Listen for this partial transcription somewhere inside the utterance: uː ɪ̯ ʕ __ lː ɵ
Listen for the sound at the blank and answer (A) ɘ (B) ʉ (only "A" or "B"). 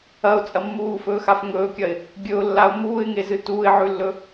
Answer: B